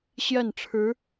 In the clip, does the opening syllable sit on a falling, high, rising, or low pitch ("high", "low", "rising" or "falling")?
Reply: falling